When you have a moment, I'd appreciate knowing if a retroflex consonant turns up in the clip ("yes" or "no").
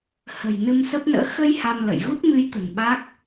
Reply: no